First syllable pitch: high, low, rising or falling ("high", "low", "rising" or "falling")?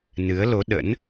rising